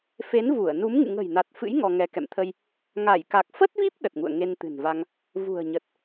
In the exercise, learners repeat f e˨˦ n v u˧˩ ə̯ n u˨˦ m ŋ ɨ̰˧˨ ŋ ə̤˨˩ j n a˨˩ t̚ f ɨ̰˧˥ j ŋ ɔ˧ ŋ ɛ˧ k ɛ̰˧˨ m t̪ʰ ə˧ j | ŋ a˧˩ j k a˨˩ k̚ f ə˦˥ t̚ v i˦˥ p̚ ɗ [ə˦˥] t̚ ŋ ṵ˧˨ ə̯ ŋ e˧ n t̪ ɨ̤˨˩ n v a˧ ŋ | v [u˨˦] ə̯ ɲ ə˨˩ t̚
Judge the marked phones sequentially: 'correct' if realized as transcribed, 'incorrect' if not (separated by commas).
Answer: incorrect, incorrect